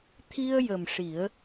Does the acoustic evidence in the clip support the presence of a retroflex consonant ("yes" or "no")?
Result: yes